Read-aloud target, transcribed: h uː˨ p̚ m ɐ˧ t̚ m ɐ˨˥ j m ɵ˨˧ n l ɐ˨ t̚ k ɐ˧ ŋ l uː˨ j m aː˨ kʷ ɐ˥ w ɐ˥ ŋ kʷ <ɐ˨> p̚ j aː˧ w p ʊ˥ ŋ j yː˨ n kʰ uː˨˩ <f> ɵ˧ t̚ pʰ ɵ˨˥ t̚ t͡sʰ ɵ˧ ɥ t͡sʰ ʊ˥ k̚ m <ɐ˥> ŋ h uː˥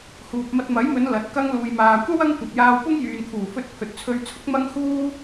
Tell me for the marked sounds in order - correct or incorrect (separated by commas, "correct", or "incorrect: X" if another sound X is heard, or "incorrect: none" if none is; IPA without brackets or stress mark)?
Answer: correct, correct, correct